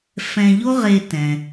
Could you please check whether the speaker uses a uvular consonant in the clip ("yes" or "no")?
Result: yes